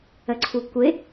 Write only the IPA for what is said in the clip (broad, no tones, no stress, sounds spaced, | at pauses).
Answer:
ə ǀʰ u kʷ ɪ